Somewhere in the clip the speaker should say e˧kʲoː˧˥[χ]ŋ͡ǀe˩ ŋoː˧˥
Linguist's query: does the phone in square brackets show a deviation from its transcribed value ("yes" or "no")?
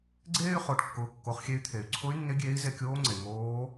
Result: yes